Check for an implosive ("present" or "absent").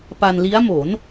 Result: absent